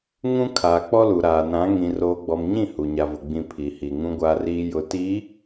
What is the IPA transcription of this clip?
ŋũ˦kʰaː˨ k͡pɔ˦lu˨ɾaː˨ nã˨˦ ŋĩ˨roː˨ ɡ͡bɔ˨mɲĩ˦˨ hu˨ɲa˨vʊ˨ ɡ͡bĩ˨ pʰi˨hi˨ ŋũ˨ɡʷaː˨riː˨ jʊ˨ti˨˦

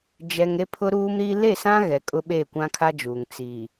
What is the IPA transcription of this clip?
d͡ʒɛ˨ŋ ɾe˦pʰʊ˦ɾuː˦mɾiː˦ le˦˨sã˦ ɣɛ˨kʼʊ˦ɓe˦˨ kʷã˦kʰa˦d͡ʒuː˨ŋ t͡siː˨

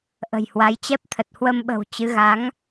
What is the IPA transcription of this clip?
ʔə̤˨˩jhwa˨˦j t͡ɕɛ˦˥p̚t̪ʰə˨˩t̚ hwə˧mɓə̤˨˩w t͡ɕɨ˨˦ ɣa˨˦ŋ

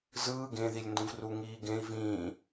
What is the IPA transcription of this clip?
zɯː ɡẽðilʲndũv ruŋiːɡẽi̯ vĩː

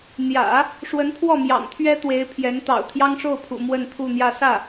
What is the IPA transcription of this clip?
n̪jä̰˨˩˦ | ʂwə˧˥npʰwɔ˥˩mjɑ̰˨˩ŋt̪ʰɥɛ˥ t̪we˧˥ɪ̯ pʰjɛ˧˥n t̪ɑ̰˨˩ʊ̯t̪ʰjɑ˥ŋʂo˥˩ʊ̯pʰṵ˨˩ mwə˥˧nt̪ʰu˥˧n̪jä˥˧ sä˥˩

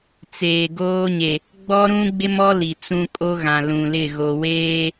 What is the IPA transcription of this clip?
t͡seː˨ɡoː˦ɲe˨ | ɡ͡bɔ˦ɾũ˦ɡ͡bɪ˦mɔ˦ li˨t͡sũ˦ kʼo˦ɣã˨ lũ˨lɪ˦˨ ɣo˨weː˦

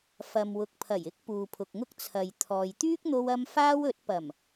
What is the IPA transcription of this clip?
fɐ˨mwʊ˨k̚pʰɐ˨˩jɪ˥k̚ puː˨pʰʊ˨k̚ŋʊ˥k̚ t͡sʰɐ˨j t̪ʰɔː˨j t̪yː˥k̚n̪o˧wɐ˧m faː˥w ɵ˨˥t̚pɐ˨˩m

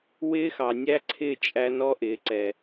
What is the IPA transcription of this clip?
wɪː˦xɑ˨nʲæ˦ǀʰɪ˦˨ t͡ʃʼæ˦n ɔ˦ʔɪː˨ǀɛ˨

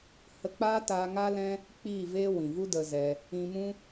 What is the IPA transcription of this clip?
hə˧k͡paː˦ taː˧ŋaː˦lɛ̃˦ | k͡piː˦˨veː˦ wĩ˨vu˦də˧zɛ˧ | ĩ˧mũ˦

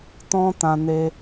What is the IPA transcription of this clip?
tɔ̃˦tã˧ ne˦

